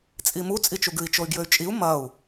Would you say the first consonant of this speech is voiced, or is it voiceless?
voiceless